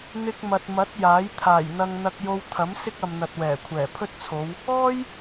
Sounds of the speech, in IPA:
n̪ɪ˧k̚mɐ˨t̚mɐ˨˥t̚ jaː˨˥j t̪ʰaː˨˩jn̪ɐ˧ŋ n̪ɐ˧k̚jo˧w t̪ʰɐ˨˥m sɪ˥k̚ɐ˨mn̪ɐ˨t̚ wɛː˨˩kʷʰɛː˨˩pʰɵ˥t̚t͡sʰo˨˧w | ɔː˥j

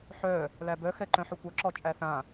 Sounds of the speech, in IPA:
ħœ | læbœxɛ ǃœ̃ħɵkʷʌǁɔ t͡ʃʼæθã

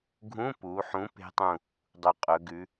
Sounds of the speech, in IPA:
ɡʱũ˧˥˧pu˩˧ħũ˨˥ pe̤˦˥tˤũ˦˨ | dˤu˩qʼɵ˩˧ɡʉ˨˥

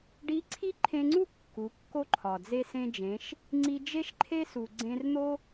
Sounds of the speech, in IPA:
ɖi˧˥ǀʰi˥ǃʰẽ˧ŋ͡ǀu˥ kːu˩˧kːo˥ǃʰɒ˩ d͡ze˧sẽ˧d͡ʒẽ˩˧ʃ | ŋ͡ǀi˧d͡ʒe˥ʃǃʰe˥ su˩ɡ͡ǀẽ˧rn̪o˥

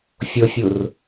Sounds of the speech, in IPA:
fʲofʲur

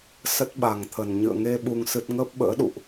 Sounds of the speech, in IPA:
sə˦˥t̚ɓa˨˩ŋt̪ʰə˨˩n ɲɨ̰˧˨ə̯ŋe˧ ɓu˧ŋsɨ˦˥t̚ ŋəː˦˥p̚ɓə̰ː˧˥ɗṵ˧˨ʔ

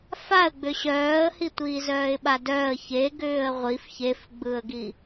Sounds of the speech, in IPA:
faə̯ɡ͡bʏ ɕœːə̯hi tʷiːzœːɪ̯ɓadœːə̯ çe ɡʏːə̯ʁʷif çefɡ͡bɯə̯ɡi

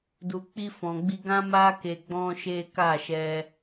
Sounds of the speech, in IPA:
du˨k͡pi˧fɔ̃˨ɡ͡bi˧ ɡã˦ma˦ ke˧ɡ͡bɔ̃˦ʃe˦ ka˦˨ʃɛ˧

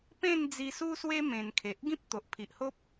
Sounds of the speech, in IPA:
pẽ˥˧nd͡zi˧su˦swe˦ mẽ˧nkʰe˨ʔ ɡĩ˦p̚t̪o˨ʔpʰi˨ʔho˦p̚

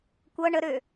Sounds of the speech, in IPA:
kʷɤ ɳəɾø

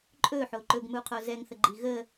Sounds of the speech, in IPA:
ǃʼɵħo ǃɵɡmuqʰo zɛŋθəɡ͡ǃi ɣə

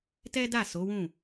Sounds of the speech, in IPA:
tɛ˦da˦˨ so˨˦wũ˦˨

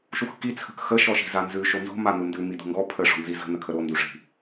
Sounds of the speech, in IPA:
ʃuxki t͡sʰə̤kxə ʃɔʃi̤zanzʉ ʃonzo̤ manundʉ midṳŋɡɔ pʰə ʂɔ̤nzizə̤ nəkʰəɾo nduʂi̤

